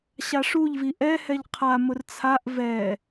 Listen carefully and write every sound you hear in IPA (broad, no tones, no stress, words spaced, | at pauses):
ɕaʂuʎ viʔɛ hɛʎqʰa mʊrt͡sʰaʔ vɛ